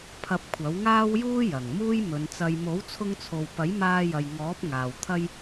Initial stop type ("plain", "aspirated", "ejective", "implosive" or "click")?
aspirated